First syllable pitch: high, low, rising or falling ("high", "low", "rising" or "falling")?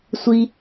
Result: high